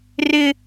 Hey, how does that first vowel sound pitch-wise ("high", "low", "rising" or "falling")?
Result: high